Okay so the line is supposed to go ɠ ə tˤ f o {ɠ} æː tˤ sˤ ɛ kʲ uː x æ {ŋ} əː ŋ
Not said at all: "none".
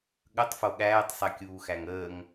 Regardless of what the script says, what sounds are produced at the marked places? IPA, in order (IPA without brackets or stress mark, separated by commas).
ɠ, ŋ